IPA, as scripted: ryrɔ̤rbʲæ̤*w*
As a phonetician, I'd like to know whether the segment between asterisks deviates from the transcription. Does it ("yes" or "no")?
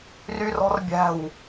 no